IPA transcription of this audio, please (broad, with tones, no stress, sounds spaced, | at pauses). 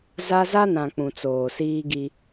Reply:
z a˦ z a˦ n ã˨ k͡p ũ˨ t͡s oː˨ s iː˦ ɡ i˦